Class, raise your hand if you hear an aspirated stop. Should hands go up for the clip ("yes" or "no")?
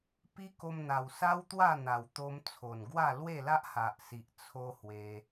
yes